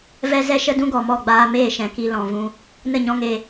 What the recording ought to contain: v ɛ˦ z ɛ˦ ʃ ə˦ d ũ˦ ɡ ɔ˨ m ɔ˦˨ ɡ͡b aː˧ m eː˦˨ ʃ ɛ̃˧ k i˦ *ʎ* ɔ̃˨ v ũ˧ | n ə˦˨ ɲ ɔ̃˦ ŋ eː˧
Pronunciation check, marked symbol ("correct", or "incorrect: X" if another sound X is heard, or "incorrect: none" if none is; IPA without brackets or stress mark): incorrect: l